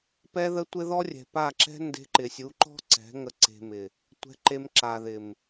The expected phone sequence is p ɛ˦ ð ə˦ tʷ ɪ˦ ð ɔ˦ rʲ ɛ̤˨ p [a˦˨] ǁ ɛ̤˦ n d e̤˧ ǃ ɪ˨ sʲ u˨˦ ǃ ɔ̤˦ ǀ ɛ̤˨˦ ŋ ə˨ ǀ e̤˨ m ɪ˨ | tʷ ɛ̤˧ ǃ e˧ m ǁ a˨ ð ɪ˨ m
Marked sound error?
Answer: no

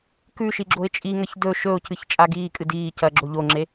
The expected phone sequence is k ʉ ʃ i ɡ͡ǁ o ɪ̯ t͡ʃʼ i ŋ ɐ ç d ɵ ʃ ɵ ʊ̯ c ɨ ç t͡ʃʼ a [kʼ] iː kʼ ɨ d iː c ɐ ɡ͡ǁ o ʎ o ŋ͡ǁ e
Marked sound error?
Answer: yes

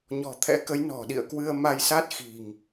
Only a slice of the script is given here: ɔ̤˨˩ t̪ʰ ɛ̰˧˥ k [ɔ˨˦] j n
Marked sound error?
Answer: yes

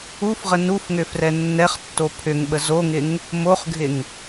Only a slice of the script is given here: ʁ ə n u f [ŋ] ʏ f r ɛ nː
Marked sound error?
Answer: no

